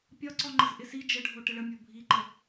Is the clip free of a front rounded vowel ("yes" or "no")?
yes